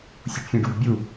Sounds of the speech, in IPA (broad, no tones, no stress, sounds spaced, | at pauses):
sʲ ṳ ʈ fʲ ẽ ɖ u ɡ bʲ u